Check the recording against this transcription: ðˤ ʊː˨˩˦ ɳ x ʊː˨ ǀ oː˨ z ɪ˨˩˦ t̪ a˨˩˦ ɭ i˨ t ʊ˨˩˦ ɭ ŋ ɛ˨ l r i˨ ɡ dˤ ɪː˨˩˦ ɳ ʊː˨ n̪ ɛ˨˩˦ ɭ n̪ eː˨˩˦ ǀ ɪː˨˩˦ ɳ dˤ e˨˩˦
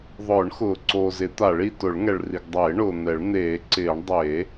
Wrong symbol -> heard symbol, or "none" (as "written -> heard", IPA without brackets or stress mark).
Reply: l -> ɭ